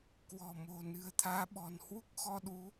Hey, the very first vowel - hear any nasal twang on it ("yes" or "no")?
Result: no